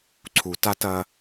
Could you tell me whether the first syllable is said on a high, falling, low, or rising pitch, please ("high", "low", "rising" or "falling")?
low